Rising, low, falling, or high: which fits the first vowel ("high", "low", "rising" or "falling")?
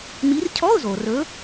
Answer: rising